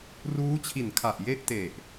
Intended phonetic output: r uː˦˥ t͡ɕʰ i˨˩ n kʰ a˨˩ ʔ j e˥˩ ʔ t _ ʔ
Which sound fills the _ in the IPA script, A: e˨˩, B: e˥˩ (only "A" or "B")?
A